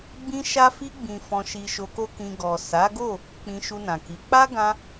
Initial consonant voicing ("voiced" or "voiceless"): voiced